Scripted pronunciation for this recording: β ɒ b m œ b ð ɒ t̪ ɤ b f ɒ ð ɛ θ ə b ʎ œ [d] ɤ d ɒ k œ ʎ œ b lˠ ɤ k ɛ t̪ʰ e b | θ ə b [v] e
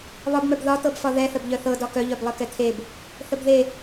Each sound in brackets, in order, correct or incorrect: incorrect: θ, incorrect: ð

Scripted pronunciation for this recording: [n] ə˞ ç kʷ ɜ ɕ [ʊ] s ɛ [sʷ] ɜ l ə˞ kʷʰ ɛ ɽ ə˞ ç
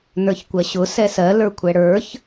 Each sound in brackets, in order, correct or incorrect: correct, correct, incorrect: s

